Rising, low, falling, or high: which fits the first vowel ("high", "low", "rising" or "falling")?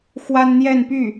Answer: high